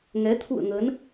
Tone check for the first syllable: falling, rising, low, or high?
rising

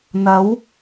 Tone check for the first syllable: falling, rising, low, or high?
rising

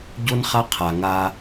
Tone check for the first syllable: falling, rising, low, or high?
high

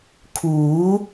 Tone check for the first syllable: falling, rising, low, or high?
rising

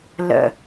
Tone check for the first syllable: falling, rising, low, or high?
low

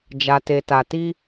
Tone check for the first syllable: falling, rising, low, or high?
low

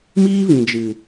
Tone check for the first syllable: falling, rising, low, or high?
high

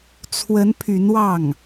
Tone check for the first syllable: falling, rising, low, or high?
rising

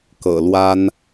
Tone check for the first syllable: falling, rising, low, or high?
low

